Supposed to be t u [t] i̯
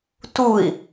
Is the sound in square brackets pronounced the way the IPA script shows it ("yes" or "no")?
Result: no